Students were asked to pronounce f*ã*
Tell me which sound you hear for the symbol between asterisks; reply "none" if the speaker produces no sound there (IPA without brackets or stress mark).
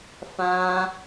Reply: ã